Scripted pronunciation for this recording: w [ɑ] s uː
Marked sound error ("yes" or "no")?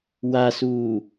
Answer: yes